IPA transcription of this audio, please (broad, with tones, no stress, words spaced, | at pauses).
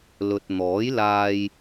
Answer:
lɵ˨t̚n̪ɔː˨˥jlaː˧j